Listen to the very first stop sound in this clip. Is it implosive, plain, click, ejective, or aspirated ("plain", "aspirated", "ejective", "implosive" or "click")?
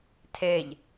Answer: aspirated